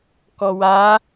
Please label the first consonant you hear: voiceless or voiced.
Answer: voiceless